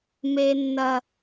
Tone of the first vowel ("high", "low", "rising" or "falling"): high